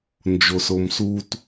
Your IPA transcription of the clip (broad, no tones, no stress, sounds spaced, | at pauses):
n d͡ʒ o s o m s u t